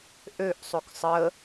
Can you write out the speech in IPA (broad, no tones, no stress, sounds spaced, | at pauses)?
ʔ ø ʔ sˤ o k sˤ ə